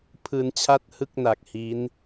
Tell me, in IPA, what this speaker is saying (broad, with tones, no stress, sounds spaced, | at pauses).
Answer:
pʰ ɯː˧ n t͡ɕʰ a˥˩ t̚ h ɯ˥˩ k̚ n a˨˩ k̚ h i˦˥ n